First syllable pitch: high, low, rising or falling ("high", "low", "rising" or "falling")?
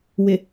low